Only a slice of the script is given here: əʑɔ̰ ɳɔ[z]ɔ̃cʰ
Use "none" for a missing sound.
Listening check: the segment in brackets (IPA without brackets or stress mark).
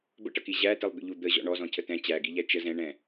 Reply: z